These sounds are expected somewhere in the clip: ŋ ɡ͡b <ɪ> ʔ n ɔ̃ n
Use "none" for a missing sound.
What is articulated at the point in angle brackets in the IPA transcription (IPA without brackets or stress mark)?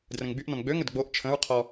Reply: y